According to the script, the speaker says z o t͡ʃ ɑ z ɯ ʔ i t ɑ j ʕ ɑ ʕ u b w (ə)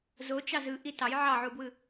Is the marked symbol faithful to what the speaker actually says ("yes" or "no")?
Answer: no